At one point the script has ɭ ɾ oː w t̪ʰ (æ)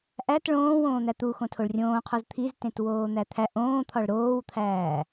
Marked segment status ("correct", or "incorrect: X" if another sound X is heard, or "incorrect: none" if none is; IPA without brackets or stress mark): incorrect: æː